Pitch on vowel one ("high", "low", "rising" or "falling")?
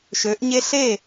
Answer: rising